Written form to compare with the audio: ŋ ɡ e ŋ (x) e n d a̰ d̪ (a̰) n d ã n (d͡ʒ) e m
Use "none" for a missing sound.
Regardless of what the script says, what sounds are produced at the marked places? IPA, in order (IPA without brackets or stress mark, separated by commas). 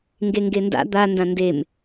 ɡ, a, d